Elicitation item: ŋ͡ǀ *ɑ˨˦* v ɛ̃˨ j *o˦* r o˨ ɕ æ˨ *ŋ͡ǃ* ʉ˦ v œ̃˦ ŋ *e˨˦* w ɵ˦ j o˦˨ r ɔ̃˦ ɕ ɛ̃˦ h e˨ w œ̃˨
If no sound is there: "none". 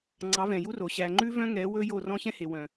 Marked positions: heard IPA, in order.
ɑ˨˦, u˦, ŋ͡ǃ, ɛ˨˦

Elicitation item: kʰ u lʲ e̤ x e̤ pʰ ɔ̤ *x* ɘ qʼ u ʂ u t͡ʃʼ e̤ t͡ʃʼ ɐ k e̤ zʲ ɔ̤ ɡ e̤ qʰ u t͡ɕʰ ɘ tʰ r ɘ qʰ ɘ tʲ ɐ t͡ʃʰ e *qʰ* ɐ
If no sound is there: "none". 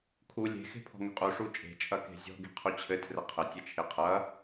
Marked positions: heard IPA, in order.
ŋ, qʰ

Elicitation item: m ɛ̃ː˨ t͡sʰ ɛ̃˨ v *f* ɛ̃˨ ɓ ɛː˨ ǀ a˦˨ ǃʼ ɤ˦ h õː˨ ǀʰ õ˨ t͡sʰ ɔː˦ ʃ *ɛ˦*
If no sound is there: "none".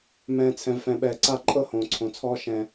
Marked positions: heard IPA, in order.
f, ɛ̃˦

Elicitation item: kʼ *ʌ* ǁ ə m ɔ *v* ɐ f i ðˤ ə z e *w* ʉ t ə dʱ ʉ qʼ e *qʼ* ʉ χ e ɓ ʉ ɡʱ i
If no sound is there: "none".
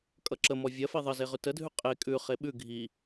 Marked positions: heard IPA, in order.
ʌ, vʲ, ʁ, kʼ

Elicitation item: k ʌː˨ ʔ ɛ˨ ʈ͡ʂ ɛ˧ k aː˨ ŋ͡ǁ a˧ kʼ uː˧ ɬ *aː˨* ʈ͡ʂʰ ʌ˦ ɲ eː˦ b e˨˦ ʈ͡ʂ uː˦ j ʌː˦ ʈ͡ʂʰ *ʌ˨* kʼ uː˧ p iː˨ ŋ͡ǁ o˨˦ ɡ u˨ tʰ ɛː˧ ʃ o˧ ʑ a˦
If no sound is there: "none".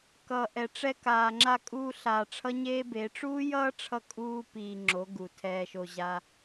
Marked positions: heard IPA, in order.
aː˨, ʌ˧

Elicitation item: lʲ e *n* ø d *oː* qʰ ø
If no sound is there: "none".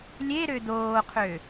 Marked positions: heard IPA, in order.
ɾ, oː

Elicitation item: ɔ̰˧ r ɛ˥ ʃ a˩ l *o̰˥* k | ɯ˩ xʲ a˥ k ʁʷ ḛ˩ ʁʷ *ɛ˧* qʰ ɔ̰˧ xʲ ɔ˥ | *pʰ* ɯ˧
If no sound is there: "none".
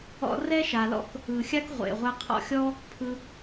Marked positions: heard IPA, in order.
ɔ̰˥, ɛ˧, pʰ

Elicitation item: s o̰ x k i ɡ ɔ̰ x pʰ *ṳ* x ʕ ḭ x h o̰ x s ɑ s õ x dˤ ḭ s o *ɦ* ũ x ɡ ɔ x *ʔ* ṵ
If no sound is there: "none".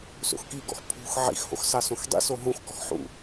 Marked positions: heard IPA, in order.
ṳ, ɦ, ħ

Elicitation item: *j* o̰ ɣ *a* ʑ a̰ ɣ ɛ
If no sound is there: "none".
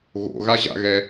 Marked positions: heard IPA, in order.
ɣ, a

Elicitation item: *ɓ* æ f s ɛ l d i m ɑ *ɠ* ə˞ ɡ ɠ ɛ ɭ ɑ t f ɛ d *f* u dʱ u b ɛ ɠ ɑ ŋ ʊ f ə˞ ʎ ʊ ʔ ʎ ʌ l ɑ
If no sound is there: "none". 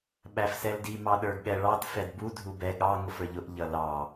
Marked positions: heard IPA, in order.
ɓ, ɗ, b

